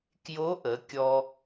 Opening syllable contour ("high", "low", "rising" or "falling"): rising